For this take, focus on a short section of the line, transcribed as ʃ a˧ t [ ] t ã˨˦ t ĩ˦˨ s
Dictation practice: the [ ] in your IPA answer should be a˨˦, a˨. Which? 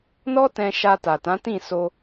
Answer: a˨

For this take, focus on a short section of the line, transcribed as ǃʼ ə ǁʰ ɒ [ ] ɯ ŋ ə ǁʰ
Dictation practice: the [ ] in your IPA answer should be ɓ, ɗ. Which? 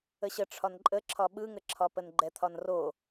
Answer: ɓ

